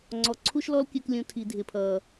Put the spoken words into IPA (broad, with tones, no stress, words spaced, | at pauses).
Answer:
ŋ͡ǀɔ˨ǀʰu˦ʃlɔ˦lkʲɜ˧k lʲũ˨tʰi˨ dʱɪ˨pʰʌ˨